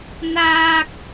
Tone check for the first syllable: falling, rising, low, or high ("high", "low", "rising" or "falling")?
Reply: high